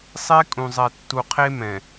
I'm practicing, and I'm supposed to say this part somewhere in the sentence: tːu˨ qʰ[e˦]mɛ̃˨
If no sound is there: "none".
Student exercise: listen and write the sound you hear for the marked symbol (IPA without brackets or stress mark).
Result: e˦